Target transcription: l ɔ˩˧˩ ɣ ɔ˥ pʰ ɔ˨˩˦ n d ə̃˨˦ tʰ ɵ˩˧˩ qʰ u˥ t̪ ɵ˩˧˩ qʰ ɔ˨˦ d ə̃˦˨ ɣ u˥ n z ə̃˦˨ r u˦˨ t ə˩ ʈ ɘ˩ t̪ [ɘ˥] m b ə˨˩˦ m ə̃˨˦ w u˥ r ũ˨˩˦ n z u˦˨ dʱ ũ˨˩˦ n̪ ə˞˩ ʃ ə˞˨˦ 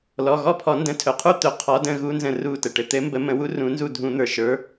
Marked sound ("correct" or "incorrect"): incorrect